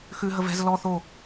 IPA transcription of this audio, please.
xʉ ɦəvɛ̤z lɔ θo

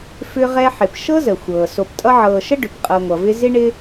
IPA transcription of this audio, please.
fʏ˦ʁɛ˦ ħɪ˨p ʃɤ˥zə˩ xʷɤː˩so˨p tʼʌ˦ʕɤː˨ʃə˥ ɖʏ˩pqʼɤ˨ŋʷʌ˩vɪ˦ zɪ˥ ɳɪ˦

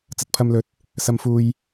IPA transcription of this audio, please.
t͡sɐ˨t̚pʰɐ˨mlɵ˨˥t̚ | sɐ˨mfuː˨j

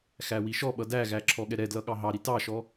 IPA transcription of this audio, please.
xæwiʃɔɓʌ dæɣæ ǁʰɔɠɛɾɛdlʌ ɠɑɦɑɾi tɑʃɔ

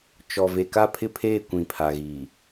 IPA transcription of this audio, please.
t͡ʃɔ˨ ve˨ka˦˨ pʰɪ˦pʰeː˦˨ kʷĩ˨pʰa˨ɣiː˨

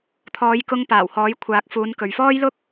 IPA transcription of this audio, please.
t̪ʰɔː˨˧jkʊ˧ŋpaː˨˩w hɔː˨˥jkʷʰaː˨˥k̚fuː˨˧n kɵ˨ɥfɔː˥jlʊ˥k̚

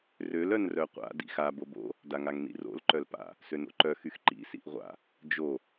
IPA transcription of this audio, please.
røl œnrœqʷa̰ dḭxa bobo̰ | daŋaŋnḭro̰l ǃœlpa̰ | søno̰ǃœ xyxǃḭ sḭʔʁʷa̰ | d͡ʒo

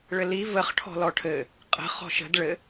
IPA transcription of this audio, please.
ɭɘli vəχ ʈʰɔ̤lɔʈʰɘ | qʼə̤ χɔ̤ʃə̤d ɭɘ

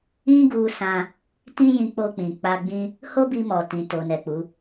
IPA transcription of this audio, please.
ĩ˦ɡu˧sã˧ | tĩ˦jĩ˧k͡po˧k͡pĩ˨ k͡pa˧ɡ͡bĩ˦ | ho˦bi˧mɔ˨ tĩ˨to˨nɛ˨k͡pu˨˦

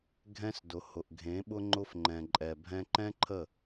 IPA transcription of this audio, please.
ɡʱɛ̃˦sdʊ˨ hʊ˨ʔɡʱẽ˨˦ɓʊ˦ ŋ͡ǃʊ˦fŋ͡ǃɛ̃˨ǃʼɛ˨bʱɛ̃˦ ǃɛ̃˦ǃʰə˦˨

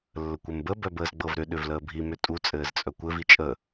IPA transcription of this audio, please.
lːəkʷɘmbə bœbəːzɡ͡bɤvɾʏ ɗʏvləːbʱi mʏtʼu t͡sʼɘːzt͡sʼœkʷɘv it͡ʃʼə

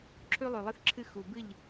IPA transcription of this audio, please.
ǁʰʉ˦lˠʉ˨lˠɨ˦θǁʰɨ˦ xu˨bɨ˦˨ʎ

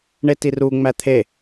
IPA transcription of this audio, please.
ɳetiru ŋ͡mæt̪ʰe

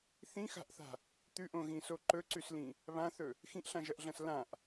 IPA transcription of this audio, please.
θĩxa̤ʔθa̤ | t̪ʉʔõɣĩso ǃɵǀʉslĩ | βãθɵ | xĩʔɬãʒɐʔɮɐ̃s lãʔ

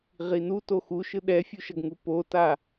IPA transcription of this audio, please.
ʁinu toxuʃɯ ɗɛfʲuʃʌɡŋu pota

